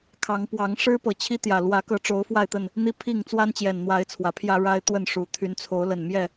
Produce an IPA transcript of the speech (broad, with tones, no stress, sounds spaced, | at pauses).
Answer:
kʰ ɑ˨˦ ŋ p w ɑ˨˦ ŋ ʂ ɻ̩˦ p ɤ˨˩ t͡ɕʰ i˦ t̪ j ä˨˩ l w ä˨˦ k ɤ˨˦ ʈ͡ʂ o˨˦ ʊ̯ f w a˥˨ ɪ̯ t̪ ə˥˨ n | n̪ i˦ pʰ i˥˨ ŋ t͡s w a˦ n t͡ɕ j ɛ˨˩ n n̪ w a˨˦ ɪ̯ t͡sʰ w ä˨˦ pʰ j ä˦ ɻ a˦ ɪ̯ t̪ w ə˥˨ n ʂ u˨˩ t̪ʰ y˨˦ n t͡sʰ o˨˦ ʊ̯ l ə˨˩ n m j ɛ˥˨